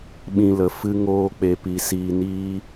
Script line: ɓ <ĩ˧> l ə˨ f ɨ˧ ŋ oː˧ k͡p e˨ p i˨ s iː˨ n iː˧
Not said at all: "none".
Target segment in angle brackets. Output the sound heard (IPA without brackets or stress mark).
ĩ˧